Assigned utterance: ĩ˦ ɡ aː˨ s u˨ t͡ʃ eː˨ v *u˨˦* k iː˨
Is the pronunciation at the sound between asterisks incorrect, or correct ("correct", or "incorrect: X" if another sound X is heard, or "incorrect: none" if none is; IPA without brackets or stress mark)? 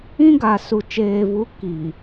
correct